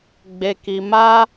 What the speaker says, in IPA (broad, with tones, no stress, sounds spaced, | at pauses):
ɡ͡b e˧ k i˧ m a˧